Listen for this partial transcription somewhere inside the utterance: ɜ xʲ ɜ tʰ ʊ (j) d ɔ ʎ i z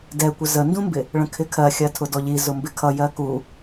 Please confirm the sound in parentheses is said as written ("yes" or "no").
no